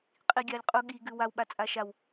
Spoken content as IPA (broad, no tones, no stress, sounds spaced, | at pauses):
qʼ i ɡʲ a lʲ qʼ u ɠ i ɡ ʉ w a w ɓ a t͡sʼ a ʃ a w